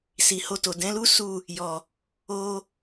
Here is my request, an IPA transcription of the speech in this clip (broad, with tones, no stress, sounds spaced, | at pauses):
s i˨ h o˧ t o˨ d ɛ̃˨˦ l u˦ s u˦˨ | j ɔ˨ | o˧